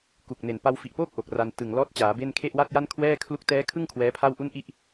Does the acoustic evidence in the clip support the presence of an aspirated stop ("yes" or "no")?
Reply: yes